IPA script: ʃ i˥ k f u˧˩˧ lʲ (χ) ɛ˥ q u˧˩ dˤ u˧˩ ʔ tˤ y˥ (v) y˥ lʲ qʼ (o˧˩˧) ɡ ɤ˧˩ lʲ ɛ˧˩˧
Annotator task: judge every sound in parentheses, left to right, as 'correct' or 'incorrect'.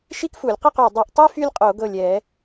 incorrect: q, incorrect: f, correct

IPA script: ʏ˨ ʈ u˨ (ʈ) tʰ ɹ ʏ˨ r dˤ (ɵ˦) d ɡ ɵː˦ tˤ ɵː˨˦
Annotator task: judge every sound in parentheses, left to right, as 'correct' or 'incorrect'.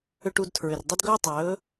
incorrect: d, incorrect: ə˦

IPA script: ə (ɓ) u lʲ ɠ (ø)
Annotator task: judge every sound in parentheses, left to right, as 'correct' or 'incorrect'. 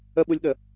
correct, incorrect: ə

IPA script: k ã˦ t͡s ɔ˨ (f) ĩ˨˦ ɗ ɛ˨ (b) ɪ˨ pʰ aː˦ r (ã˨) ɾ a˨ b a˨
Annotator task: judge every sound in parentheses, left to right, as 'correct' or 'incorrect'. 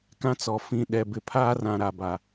correct, correct, correct

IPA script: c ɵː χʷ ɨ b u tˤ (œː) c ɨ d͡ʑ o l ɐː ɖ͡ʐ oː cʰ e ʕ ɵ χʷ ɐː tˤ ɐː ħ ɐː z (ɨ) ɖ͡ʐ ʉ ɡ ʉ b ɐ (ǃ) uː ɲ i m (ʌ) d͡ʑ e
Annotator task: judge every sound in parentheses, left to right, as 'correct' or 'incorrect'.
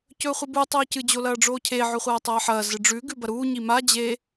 incorrect: ɵː, correct, incorrect: ɾ, incorrect: a

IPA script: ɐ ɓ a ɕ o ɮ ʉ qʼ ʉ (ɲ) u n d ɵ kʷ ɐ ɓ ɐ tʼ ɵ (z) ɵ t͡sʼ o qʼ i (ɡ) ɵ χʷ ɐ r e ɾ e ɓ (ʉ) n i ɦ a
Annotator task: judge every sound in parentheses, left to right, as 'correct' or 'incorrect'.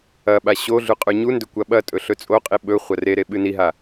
correct, incorrect: ɬ, incorrect: ɓ, incorrect: ɨ

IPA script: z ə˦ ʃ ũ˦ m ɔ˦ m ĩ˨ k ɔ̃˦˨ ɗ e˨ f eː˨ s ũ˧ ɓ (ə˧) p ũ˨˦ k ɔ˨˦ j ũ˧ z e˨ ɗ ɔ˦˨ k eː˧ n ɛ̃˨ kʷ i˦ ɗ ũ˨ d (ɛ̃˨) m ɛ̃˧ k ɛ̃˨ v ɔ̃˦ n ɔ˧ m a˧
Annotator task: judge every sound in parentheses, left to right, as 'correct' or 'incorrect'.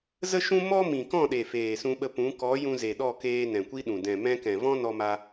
correct, correct

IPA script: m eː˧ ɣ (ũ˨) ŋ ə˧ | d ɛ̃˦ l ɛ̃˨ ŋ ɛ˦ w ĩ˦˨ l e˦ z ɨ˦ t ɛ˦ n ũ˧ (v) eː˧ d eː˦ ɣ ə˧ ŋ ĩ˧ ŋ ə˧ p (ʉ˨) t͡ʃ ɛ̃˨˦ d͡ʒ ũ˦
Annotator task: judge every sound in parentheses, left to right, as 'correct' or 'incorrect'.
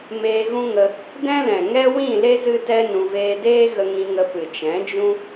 incorrect: ũ˦, correct, incorrect: ɨ˨

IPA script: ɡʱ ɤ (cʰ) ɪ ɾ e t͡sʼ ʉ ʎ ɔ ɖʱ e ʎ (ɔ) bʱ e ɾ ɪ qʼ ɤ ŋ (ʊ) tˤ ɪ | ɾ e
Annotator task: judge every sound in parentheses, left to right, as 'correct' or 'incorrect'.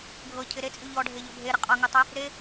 correct, correct, incorrect: ʉ

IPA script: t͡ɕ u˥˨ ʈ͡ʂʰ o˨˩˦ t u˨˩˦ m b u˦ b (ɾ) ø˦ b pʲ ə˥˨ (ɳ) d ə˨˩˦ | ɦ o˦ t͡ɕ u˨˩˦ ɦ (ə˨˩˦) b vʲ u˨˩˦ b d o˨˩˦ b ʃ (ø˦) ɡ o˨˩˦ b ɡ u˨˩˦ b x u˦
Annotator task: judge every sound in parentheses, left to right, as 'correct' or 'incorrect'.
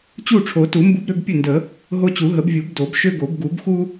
correct, incorrect: n, correct, correct

